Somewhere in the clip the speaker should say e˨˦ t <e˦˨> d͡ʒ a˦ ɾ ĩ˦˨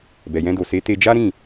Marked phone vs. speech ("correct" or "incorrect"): incorrect